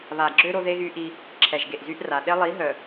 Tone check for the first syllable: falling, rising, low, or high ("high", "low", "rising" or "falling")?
low